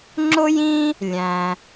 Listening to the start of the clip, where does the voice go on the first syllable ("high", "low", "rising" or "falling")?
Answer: high